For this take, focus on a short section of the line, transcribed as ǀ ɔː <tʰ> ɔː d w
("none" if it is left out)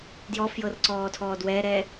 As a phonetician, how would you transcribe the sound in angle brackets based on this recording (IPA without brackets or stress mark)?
tʰ